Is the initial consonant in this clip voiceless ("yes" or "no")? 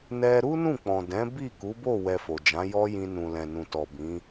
no